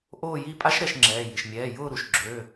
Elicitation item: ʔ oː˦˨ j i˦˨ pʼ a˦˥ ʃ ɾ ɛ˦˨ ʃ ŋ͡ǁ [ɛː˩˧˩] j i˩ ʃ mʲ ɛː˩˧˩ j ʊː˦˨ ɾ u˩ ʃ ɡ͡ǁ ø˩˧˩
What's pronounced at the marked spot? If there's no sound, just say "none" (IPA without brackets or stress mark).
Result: ɛː˩˧˩